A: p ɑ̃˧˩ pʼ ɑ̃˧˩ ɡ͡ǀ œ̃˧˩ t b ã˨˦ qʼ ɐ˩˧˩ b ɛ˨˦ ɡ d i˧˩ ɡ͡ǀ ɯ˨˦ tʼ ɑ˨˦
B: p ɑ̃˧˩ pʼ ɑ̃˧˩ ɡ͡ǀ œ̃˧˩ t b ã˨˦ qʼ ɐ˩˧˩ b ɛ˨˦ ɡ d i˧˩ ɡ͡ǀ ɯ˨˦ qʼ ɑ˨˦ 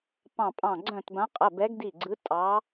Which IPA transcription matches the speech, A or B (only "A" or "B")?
A